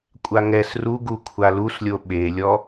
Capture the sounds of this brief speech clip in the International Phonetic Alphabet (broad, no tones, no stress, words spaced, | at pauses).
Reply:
kʷʼaŋɛs ruɡu kʷʰaluslʲo ɓelʲɔ